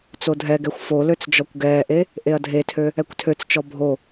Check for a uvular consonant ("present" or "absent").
absent